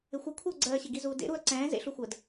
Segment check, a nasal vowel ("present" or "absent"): present